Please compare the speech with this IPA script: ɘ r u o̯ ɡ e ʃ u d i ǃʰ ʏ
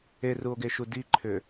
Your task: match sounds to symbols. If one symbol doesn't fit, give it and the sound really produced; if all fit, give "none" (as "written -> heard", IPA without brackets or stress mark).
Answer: ɘ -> e